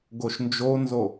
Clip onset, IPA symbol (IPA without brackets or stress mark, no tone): ɡ